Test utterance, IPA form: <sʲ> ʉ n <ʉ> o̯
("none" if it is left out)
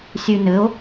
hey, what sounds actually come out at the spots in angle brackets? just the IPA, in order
sʲ, ɘ

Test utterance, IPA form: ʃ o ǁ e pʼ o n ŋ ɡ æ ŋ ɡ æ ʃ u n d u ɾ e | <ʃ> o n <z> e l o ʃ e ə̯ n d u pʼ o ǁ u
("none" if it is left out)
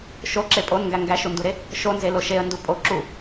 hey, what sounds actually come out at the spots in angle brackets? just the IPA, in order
ʃ, z

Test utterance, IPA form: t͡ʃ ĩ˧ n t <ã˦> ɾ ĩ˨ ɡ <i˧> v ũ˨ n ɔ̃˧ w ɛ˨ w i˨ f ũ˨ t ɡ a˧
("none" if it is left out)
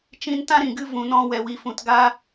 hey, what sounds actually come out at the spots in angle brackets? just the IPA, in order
ã˦, ɨ˧

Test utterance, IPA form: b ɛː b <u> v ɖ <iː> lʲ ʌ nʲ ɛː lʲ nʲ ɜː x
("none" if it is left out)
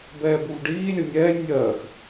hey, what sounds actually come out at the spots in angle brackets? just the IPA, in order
u, iː

